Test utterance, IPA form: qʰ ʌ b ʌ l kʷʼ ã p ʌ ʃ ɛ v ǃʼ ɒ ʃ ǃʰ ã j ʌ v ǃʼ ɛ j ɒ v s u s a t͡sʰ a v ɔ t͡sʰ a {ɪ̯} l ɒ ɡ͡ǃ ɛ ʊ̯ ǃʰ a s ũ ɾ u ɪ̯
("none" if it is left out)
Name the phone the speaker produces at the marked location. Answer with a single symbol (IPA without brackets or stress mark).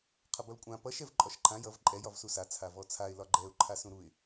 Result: ɪ̯